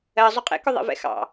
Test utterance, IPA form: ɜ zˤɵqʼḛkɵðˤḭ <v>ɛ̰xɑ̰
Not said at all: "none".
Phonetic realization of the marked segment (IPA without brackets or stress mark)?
v